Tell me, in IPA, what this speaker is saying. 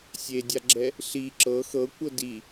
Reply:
sʲ e dʲ a ɡ͡ǁ ɛ | ɬ i ǁ ɤ x ɤ kʷ ɤ d i

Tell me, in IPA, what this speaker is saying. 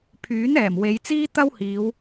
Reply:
pʰ yː˨˥ n ɛː˨˩ m w e˨˧ j t͡s iː˥ t̪ ɐ˥ w h iː˨˧ w

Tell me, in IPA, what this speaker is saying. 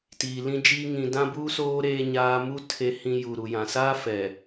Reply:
t iː˨ l ĩ˦ d͡ʒ iː˦ ŋ ĩ˨ d ã˦ b uː˦ s oː˦ ɾ eː˦ ɲ aː˦ m u˦ tʰ e˨ h ĩ˨ j u˨ ɾ u˨ j ã˨ s aː˦ f ɛ˨

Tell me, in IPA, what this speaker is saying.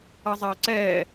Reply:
ʌ zˤ ʌː ǀ ɛː

